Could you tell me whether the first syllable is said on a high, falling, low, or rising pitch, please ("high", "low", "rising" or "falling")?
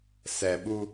low